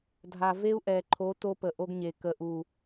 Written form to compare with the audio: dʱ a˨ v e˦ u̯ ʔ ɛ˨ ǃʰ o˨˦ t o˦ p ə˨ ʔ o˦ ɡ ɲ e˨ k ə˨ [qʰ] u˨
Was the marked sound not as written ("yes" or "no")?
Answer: yes